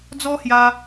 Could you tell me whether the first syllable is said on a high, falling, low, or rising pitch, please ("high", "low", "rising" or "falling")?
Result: high